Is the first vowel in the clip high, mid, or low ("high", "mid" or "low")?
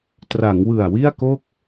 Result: low